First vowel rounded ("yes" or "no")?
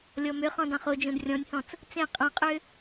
yes